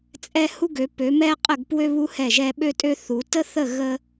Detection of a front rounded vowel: present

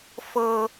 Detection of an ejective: absent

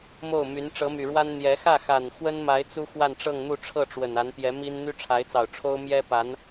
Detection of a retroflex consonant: present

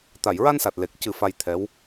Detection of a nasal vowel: absent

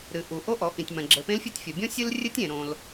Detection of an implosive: absent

